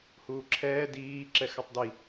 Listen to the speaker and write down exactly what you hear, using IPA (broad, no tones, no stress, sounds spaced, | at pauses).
h uː ǁʰ ɛː d iː ǁ ɛ x a tˤ d i